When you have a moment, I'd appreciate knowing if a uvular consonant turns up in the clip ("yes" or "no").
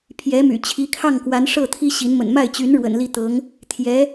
no